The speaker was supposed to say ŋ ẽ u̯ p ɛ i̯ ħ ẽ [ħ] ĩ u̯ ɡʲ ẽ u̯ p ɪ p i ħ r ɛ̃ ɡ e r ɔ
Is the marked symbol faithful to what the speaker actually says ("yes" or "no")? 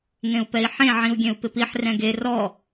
no